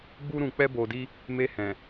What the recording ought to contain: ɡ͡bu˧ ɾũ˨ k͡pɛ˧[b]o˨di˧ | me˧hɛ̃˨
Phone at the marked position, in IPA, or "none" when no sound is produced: b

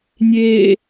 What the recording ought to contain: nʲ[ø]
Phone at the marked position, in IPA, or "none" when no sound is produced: e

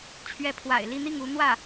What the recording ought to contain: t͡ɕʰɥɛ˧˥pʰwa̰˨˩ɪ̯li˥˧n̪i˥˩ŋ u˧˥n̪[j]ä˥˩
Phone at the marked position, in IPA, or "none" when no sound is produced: w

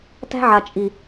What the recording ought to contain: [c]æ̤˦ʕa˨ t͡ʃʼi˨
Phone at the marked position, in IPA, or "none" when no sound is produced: t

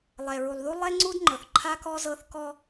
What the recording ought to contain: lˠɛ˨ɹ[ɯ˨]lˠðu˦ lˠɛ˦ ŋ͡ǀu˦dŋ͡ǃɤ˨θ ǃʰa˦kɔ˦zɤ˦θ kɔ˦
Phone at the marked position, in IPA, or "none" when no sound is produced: u˨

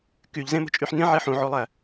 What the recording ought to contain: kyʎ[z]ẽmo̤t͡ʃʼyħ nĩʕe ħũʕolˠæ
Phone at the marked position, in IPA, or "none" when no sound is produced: z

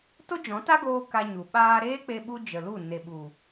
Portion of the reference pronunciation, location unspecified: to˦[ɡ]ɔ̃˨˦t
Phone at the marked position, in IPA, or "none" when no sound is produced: d͡ʒ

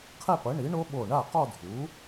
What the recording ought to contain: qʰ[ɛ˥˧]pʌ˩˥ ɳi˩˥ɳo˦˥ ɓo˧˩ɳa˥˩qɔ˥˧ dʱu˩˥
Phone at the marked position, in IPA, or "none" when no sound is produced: ɛ˥˧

